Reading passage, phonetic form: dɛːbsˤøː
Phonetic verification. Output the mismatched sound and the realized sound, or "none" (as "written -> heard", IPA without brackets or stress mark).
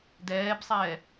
øː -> ɛː